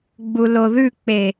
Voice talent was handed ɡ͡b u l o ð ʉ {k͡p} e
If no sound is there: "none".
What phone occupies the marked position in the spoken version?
k͡p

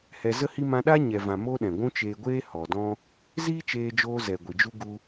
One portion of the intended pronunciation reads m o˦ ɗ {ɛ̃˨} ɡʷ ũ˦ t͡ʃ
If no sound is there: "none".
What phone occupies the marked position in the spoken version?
ɛ̃˨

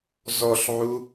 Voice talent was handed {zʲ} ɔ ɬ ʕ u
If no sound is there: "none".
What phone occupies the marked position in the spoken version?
z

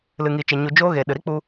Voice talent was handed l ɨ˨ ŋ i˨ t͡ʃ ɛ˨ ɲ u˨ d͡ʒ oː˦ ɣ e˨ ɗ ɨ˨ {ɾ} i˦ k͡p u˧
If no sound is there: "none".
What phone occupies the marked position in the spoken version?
ɾ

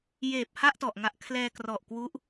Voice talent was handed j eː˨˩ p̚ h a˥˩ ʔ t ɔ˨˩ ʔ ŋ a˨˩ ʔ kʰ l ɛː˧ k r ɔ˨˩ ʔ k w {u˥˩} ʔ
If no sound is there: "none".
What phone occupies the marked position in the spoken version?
u˦˥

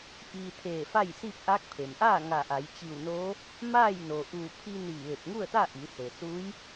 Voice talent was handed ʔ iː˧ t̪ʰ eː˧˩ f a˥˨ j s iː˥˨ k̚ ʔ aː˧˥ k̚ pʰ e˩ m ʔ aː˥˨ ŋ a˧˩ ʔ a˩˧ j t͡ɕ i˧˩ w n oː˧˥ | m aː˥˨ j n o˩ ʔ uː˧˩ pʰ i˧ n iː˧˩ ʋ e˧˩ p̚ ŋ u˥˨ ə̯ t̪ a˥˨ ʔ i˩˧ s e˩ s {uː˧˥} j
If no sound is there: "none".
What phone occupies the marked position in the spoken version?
uː˧˥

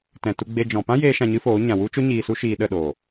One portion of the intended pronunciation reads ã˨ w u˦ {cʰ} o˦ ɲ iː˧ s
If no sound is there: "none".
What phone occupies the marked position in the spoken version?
t͡ʃ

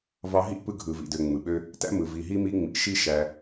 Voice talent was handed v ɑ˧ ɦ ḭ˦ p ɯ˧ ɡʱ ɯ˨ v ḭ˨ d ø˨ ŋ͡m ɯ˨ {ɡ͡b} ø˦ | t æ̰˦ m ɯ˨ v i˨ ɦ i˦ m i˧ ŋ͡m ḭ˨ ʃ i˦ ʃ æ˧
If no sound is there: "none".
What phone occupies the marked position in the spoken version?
ɓ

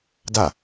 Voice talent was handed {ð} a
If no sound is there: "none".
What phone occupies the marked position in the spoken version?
d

